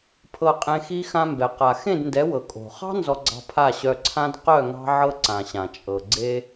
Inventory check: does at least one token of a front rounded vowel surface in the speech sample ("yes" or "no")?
yes